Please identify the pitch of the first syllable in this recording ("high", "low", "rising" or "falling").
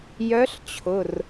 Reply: rising